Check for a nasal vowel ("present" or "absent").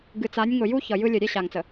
absent